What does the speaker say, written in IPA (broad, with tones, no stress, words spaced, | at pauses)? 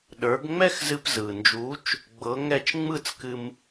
ɗə˞˩˧ɡŋ͡mɛ˥˧x zɨ˧pzɯ˩nd͡ʒu˨˥t͡ʃ | ɡ͡bɤ˨˥ŋɛ˥˩t͡ʃ ŋ͡mɯ˥˩t͡skɨ˧m